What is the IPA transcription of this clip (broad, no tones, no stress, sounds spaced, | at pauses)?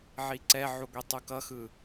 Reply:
ʕ i ǀ ɛ ʕ u ɡʷ i tˤ u k ʌ x ɯ